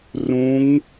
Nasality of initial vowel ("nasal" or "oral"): nasal